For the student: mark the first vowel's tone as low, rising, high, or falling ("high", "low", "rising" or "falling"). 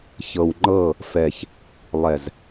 low